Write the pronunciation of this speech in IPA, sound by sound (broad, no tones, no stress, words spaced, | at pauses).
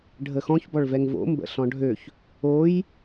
ɖʱəxɔ̃ç bɔɭvɛŋvo̰ mbə̰ɬɔ̃ɖʱøç | oj